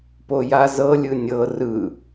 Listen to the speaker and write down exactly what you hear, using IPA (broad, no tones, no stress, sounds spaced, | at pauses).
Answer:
p o j a z ɤ lʲ ɯ nʲ ɤ r ɯ